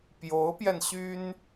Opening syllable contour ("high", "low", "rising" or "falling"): rising